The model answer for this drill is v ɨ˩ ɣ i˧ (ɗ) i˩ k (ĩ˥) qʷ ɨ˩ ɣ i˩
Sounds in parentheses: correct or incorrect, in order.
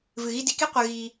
incorrect, incorrect

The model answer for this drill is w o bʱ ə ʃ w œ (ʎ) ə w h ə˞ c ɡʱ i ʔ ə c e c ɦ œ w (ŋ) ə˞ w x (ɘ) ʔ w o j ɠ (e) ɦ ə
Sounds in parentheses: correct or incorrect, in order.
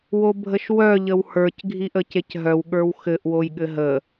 correct, incorrect, correct, incorrect

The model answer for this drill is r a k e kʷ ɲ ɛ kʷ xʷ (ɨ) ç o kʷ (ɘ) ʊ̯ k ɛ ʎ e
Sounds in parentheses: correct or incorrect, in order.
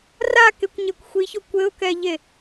incorrect, correct

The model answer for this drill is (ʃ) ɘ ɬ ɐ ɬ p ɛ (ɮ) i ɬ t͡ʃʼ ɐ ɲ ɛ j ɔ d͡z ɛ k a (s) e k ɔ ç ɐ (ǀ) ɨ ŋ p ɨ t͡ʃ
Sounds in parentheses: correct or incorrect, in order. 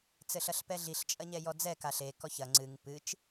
incorrect, correct, incorrect, incorrect

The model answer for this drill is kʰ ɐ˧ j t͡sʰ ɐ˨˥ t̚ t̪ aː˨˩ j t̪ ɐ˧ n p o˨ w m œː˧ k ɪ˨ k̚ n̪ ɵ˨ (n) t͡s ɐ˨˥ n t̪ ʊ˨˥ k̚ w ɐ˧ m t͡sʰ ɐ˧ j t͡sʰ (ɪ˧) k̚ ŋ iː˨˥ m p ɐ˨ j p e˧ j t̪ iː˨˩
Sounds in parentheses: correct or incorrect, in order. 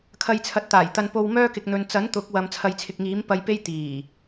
correct, correct

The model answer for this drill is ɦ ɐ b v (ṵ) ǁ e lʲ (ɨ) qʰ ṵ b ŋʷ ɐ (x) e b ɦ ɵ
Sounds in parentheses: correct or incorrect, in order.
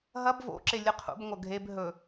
incorrect, correct, incorrect

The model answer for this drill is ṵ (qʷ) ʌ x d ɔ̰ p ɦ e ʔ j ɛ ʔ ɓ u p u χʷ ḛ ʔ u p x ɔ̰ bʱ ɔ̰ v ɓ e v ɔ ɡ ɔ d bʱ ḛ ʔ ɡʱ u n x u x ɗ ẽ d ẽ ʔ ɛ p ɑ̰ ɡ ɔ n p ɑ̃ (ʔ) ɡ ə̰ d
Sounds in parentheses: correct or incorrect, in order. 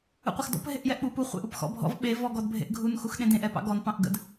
correct, correct

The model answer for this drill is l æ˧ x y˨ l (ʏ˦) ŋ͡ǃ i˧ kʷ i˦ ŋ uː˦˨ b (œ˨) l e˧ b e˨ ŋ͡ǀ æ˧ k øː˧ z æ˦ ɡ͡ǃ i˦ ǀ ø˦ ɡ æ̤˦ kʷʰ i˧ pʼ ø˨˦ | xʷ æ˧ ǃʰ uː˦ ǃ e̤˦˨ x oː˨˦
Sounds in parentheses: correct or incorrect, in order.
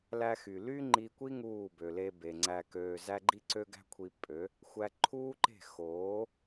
incorrect, incorrect

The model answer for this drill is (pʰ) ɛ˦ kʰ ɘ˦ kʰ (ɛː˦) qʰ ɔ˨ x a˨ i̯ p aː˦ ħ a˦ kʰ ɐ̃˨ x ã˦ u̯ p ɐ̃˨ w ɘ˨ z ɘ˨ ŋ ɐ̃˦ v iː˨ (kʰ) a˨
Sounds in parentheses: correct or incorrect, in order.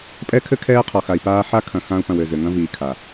incorrect, correct, correct

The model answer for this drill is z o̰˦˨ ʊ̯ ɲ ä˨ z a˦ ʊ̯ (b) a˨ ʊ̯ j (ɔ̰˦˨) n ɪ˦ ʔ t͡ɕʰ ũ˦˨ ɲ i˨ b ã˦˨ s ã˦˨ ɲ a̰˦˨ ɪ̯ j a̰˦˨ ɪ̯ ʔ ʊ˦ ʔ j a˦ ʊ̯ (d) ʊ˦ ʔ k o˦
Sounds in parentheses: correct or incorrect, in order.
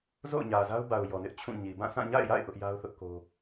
correct, incorrect, incorrect

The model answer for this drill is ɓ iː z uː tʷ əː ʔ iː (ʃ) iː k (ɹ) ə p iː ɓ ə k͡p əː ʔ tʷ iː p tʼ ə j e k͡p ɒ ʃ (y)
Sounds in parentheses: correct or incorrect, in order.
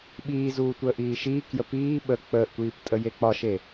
correct, incorrect, incorrect

